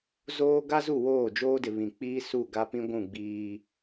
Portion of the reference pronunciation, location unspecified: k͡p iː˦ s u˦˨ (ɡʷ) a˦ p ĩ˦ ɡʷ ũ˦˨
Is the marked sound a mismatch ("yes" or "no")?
yes